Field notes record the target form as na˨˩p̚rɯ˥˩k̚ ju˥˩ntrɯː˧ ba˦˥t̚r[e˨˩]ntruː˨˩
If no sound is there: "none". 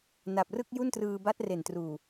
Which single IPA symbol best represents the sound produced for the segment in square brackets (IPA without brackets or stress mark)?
e˨˩